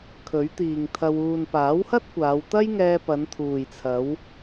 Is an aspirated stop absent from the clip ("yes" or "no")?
no